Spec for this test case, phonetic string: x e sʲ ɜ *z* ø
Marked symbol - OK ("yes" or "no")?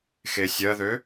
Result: no